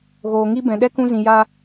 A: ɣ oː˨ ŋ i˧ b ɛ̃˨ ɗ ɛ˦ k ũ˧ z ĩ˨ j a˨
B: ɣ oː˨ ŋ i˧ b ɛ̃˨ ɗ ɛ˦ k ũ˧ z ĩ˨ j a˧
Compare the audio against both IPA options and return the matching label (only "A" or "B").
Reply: B